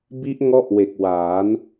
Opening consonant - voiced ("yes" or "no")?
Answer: yes